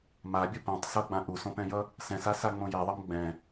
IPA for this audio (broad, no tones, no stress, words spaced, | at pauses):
mabʲʌ pɛ̃tˤ sʌɡ͡bã ʔusõpɛ̃jʌ | sɛ̃sasaŋ͡mõ jeðˤʌm ɡ͡bɛ̃